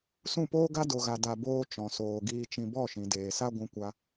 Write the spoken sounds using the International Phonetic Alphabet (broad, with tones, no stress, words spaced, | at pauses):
sũ˦˨poː˦ɡa˦ do˧ɣa˧ da˧boː˦ t͡ʃɔ̃˨soː˨ ɡiː˧t͡ʃĩ˧ bɔ˦˨ʃĩ˨deː˨sa˦ ɡʷũ˧kʷa˧